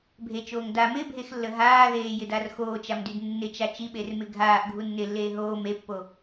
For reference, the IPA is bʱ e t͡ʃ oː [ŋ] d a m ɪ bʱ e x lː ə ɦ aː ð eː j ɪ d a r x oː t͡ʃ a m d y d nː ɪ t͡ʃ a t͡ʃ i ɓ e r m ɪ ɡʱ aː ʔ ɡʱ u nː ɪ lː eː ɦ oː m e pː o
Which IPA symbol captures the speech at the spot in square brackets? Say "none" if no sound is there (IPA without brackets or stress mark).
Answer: ŋ